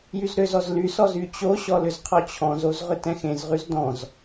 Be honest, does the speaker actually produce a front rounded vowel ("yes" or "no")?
yes